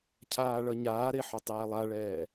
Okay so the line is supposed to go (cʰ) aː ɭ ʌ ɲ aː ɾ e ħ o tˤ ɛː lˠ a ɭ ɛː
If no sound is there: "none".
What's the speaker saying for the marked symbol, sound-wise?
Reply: cʰ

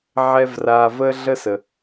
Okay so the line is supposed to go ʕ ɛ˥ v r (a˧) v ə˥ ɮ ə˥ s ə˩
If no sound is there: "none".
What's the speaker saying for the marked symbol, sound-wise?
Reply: a˧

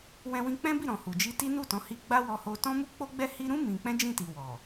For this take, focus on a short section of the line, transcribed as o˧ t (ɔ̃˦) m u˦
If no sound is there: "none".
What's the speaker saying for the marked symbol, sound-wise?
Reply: ɔ̃˦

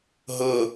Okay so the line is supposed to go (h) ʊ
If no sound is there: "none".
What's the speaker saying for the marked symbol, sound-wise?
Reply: ɦ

